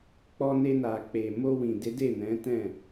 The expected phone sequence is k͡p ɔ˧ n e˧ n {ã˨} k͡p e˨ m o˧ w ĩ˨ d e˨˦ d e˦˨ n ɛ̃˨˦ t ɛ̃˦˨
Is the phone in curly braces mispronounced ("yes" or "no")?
yes